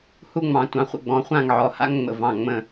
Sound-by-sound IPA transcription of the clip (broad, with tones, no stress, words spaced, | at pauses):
hu˥ŋ͡mɑ̃˧ tʷɑ̃˧χʷə̰˥˧ɡ͡bɔ̃˧χʷã˥˧ŋ ʕɔ˧ha̰˥ŋŋ͡mə̰˧˩ vɑ̃˧˩ŋ͡mə̃˧˩